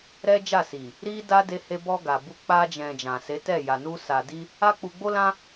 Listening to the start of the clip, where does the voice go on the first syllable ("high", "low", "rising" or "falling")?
high